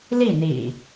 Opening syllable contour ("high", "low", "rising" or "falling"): falling